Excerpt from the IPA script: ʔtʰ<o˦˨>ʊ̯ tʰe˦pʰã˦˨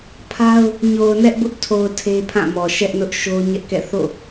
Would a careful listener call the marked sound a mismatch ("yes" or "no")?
yes